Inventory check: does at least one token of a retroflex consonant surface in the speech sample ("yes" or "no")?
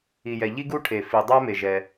yes